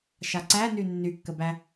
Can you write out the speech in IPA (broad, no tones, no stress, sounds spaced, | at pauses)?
ʃ a ǀ æ n y nː y kː ə b æ